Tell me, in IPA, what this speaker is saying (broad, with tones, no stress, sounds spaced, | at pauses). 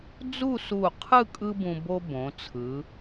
d͡z u˥˧ s u˧˩ qʰ ɯ˥˧ kʼ ɯ˥ b ũ˧ b o˥ b õ˩˧ t͡sʰ ɯ˩˧